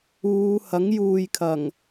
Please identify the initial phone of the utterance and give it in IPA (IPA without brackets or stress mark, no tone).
uː